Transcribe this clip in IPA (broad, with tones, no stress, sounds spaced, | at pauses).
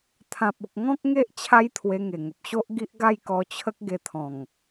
t̪ʰ ã˨ p̚ u˨ k̚ ŋ ɔ̃˦ k̚ ŋ e˦ ʔ t͡ɕʰ a˦ j t̪ʰ w e˧ ŋ e˨˩ ŋ ə˨ p̚ ɕ o˦ ʔ ɡ i˦ ʔ ɡ a˥˧ j k ɔ˧ t͡ɕʰ ə˦ k̚ ɡ e˧ t̪ʰ ɔ̃˨˩ ŋ